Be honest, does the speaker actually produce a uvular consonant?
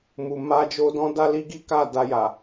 no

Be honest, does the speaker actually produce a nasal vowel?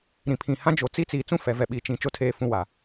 yes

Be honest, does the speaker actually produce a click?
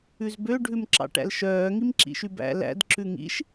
yes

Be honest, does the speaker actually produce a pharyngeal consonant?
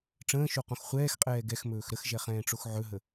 yes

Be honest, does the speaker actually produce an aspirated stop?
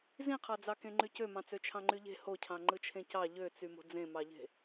yes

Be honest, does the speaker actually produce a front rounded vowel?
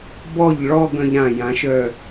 yes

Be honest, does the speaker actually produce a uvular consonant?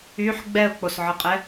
yes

